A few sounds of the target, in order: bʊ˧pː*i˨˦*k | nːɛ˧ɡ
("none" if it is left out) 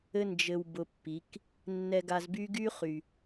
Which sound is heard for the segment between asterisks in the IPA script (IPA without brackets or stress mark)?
i˨˦